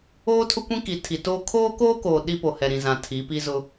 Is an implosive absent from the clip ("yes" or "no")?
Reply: no